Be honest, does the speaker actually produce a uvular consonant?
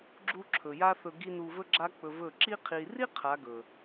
yes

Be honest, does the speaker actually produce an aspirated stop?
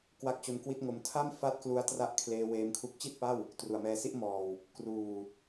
yes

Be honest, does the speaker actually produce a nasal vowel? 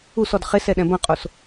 yes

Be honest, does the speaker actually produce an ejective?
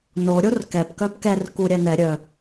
no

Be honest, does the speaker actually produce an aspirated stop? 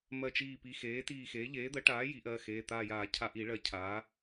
yes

